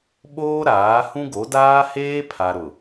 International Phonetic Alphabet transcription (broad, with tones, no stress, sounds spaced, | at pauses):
ɓ oː˦ ɾ aː˨˦ h ũ˦ ɡ o˨˦ d aː˦ h eː˦ pʰ a˨ ɾ ʊ˨